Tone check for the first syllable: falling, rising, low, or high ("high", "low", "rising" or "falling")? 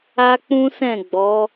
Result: high